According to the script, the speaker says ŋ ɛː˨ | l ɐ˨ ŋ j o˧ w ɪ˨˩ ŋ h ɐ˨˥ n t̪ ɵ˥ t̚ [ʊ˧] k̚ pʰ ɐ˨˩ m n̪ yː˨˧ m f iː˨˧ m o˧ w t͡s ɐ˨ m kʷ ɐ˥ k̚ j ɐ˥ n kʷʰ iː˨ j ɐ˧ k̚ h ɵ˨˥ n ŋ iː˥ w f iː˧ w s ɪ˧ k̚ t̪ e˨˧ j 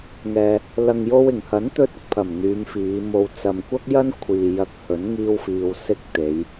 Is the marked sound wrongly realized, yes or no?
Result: yes